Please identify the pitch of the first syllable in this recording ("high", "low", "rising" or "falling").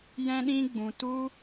high